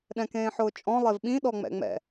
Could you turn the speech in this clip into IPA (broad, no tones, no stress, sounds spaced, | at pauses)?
ɗ ɛ̃ k ẽː ħ ʊː t͡ʃʼ ɔ̃ lˠ e v ɓ ĩ ɗ ɔ ŋ͡m ɛ̰ ŋ͡m ɛ̰